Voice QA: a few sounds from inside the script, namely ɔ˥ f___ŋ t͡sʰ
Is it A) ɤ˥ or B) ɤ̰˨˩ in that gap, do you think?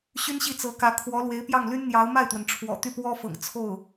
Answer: B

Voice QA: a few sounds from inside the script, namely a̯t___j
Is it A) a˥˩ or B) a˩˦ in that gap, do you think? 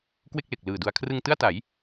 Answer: B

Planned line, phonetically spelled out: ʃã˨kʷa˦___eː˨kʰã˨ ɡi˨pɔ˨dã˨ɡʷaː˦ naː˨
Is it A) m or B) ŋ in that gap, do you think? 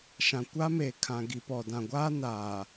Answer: A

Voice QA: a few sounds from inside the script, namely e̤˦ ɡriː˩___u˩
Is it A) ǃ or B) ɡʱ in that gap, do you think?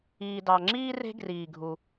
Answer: B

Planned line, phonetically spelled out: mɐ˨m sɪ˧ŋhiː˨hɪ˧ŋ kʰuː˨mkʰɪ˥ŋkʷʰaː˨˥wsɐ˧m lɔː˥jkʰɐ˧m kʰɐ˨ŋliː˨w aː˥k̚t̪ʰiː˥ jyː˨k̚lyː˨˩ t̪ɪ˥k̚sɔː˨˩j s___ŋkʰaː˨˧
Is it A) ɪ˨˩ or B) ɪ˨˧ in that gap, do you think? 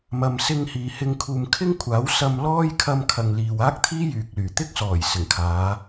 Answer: A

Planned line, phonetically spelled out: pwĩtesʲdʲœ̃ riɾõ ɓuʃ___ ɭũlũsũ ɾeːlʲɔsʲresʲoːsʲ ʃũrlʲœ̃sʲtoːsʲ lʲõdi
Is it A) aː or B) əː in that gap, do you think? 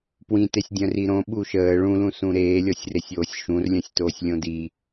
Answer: B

